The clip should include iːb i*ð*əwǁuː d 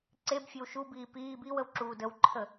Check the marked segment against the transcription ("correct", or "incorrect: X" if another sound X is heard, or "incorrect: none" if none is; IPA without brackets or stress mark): incorrect: w